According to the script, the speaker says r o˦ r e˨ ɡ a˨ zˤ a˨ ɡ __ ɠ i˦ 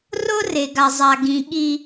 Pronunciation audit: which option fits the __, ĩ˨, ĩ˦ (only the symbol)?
ĩ˨